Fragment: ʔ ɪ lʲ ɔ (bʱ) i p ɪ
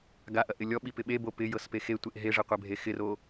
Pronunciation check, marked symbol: incorrect: ɓ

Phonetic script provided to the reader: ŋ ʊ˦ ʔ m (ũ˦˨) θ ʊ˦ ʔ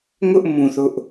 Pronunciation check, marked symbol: correct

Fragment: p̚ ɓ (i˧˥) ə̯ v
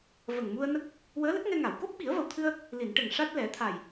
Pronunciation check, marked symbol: incorrect: i˨˩˦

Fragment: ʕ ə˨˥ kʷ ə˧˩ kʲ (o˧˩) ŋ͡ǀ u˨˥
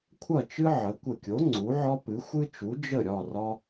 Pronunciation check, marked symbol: incorrect: o˨˥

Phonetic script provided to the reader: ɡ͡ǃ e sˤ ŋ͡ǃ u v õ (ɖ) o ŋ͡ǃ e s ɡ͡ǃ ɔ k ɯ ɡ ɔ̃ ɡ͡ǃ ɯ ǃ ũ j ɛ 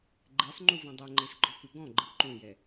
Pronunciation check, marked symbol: incorrect: dˤ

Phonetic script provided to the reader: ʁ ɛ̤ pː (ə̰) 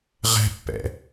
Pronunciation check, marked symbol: incorrect: ɛ̰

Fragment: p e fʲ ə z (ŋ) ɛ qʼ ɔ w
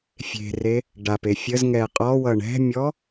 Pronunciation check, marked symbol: correct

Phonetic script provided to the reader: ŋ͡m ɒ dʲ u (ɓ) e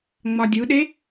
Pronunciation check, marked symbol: incorrect: ɗ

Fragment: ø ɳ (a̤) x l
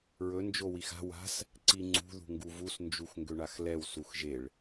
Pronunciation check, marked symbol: incorrect: a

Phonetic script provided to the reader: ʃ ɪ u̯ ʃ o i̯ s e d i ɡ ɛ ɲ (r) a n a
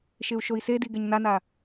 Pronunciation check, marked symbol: incorrect: n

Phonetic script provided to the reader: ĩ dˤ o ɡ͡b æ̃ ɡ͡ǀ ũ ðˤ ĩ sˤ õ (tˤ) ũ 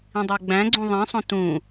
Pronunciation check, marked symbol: incorrect: t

